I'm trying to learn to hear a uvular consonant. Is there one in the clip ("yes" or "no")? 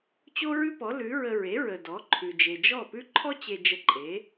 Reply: no